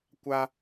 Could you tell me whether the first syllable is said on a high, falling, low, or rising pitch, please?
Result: high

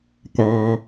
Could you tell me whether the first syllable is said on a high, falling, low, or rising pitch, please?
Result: high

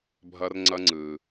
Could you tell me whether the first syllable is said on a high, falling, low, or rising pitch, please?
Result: high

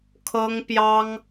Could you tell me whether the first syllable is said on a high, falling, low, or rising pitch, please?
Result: high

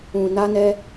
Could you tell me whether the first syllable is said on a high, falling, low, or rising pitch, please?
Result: low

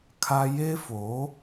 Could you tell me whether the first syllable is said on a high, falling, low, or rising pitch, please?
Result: high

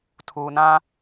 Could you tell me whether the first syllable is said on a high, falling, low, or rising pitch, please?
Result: low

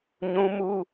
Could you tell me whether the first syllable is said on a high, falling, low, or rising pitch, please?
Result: high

